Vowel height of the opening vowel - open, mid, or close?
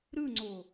close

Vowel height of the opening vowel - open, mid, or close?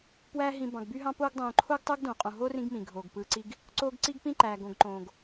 open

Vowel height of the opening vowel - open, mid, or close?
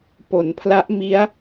mid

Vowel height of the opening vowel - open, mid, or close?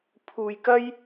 close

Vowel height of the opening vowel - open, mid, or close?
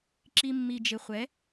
close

